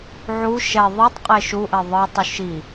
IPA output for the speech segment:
ʕu ʃɛ ðˤɯtˤ qʼeʃuʔɛ ðˤɯtˤuʃ i

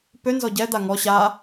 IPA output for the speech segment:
pø nzɔɟɛ d̪aŋɔ ɕa

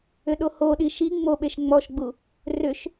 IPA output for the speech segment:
ʏɗohoɗi ʃi ŋ͡moɓeʃ ŋ͡mɔʃɡ͡bu | rʏʃ

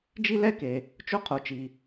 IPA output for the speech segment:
d͡ʒi˥lɛ˥ke˩ | t͡ʃo˥qʰo˩t͡ʃi˩

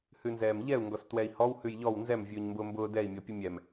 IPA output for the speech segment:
hʉnzɛːmʎɛu̯ ŋɡɔstwɛi̯hɔw hʉjʎɔw nzɛm vʲʉːɲmbʊːmbʊː dɛi̯ mʲɔpʲəmʲɛm

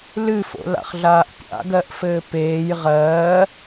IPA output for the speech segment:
lɨfo̰la̰χɮaːʔ pʲa̰ɡɜʔfɘː peːj ʁɜː

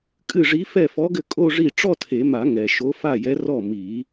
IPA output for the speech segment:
kʼɨ˥˩ʐi˧˥ fɛ˥˩fɔ˧˥ɡɘ˥˩ kʼo˥˧ʐi˥˩ ʈ͡ʂɔ˥˧tʰe˨˩˦ma˨˩˦ ŋɛ˨ʃo˧˥fa˥˩jɛ˧˥ rɔ˥˩ mi˨˩˦

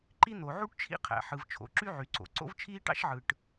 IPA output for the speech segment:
ǃi˥n̪o˩ ʕu˥ʈt͡ʃʰḭ˥qʰæ̰˩ ħɯ˩v t͡ʃʰo̰˩ǁy˥ʕy˩ǀo̰˩ ǀo̰˥vt͡ʃʰiː˥ʈɑ̰˥ʃʕɯ˩ʈ

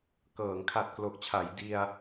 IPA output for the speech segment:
kɤː˩˦ŋkʰa˨˩t̚klo˨˩k̚t͡ɕʰa˩˦j di˧a̯

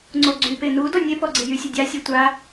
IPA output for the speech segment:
ŋ͡ǀoɡ͡ǀype nu dɔnʲepɔ ɡ͡ǀejysʲə dʲasʲe tʷa

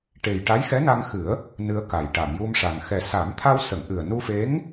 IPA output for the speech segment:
ʈe˨˩jʈa˧˥j xɛ˧˥na˧ŋxɨ˨˩˦ə̯ | nɨ˧ə̯ka˨˩j ʈa˨˩˨mju˧mʂa˨˩ŋ xɛ˨˩sa˨˩˦mt̪ʰa˧w sə˨˩˨ŋʔɨ˨˩ə̯nu˧fe˧˥ŋ

